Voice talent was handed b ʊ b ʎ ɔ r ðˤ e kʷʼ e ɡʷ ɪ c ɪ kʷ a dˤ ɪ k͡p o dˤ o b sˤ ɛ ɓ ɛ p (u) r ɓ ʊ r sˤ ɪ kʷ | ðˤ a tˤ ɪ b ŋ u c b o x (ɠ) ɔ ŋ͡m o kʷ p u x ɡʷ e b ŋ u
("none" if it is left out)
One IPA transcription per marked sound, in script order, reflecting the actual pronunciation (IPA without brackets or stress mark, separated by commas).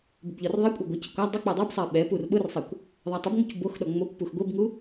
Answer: u, ɗ